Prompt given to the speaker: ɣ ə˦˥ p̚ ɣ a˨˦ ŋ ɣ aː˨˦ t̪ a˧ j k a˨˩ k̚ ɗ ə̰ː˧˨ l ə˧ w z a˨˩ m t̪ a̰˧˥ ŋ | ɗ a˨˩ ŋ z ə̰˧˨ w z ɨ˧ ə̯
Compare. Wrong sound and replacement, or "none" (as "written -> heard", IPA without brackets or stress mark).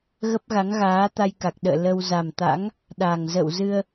none